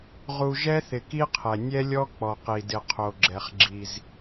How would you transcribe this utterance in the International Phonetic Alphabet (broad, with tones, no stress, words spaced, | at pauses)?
ʁu˨ ʒɛ˦θɪ˨ki˦qʰɛ˨ nʲɛ˦lʲɔ˦k͡pɔ˨ qi˨dɪ˨qʰo˨ ɡ͡ǁɛ˨χ ɡ͡ǁi˦z